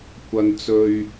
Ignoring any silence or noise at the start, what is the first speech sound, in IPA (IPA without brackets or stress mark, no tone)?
kʷ